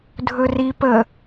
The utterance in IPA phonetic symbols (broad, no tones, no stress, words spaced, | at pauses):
dʱɵri pə